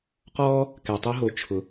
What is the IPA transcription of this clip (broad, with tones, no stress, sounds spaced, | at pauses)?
q ɔː˦ | k ɛ˨ tˤ u˥ ɦ o˨ t͡ʃʰ ʊ˨